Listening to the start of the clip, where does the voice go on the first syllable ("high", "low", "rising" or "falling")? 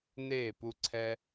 falling